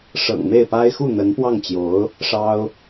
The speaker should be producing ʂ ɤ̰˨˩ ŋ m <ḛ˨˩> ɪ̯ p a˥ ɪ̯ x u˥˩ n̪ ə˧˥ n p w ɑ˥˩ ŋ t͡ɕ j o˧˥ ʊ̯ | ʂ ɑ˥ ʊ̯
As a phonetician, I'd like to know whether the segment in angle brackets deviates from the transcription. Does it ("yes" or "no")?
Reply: yes